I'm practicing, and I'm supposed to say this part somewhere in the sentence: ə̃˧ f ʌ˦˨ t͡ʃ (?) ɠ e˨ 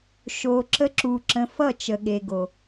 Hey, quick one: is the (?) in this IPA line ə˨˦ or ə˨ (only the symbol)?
ə˨